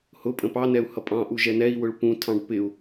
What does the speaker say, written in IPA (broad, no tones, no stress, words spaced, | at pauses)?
hʊpʼə̃ pɑnɛu̯ hʌpʼɑ̃ʔu ʒɛnɛi̯wʊɭ pũtʰɑ̃ɖ pɪu̯